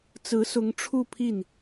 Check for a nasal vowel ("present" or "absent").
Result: absent